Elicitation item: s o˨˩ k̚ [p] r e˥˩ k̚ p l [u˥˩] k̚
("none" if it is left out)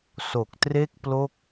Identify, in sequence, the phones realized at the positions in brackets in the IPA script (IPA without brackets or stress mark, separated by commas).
t, o˥˩